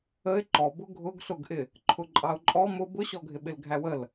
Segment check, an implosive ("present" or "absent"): present